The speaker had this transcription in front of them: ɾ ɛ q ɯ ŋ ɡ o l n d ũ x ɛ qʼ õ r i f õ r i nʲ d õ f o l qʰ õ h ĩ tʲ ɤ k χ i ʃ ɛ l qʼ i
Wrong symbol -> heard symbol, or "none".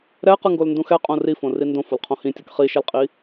nʲ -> n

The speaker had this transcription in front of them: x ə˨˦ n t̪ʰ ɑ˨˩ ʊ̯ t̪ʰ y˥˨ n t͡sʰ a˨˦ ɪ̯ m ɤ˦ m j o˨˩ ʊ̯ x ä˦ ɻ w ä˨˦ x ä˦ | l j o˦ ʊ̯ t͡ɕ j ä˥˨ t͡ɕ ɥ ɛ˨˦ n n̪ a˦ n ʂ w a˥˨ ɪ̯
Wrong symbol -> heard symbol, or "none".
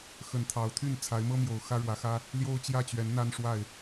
none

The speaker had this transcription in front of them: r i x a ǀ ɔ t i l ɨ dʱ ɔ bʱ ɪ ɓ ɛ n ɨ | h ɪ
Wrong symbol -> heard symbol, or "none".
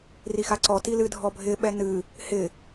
none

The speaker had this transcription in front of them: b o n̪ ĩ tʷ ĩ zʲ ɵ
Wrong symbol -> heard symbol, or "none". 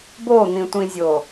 ɵ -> o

